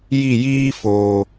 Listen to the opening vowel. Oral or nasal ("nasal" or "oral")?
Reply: oral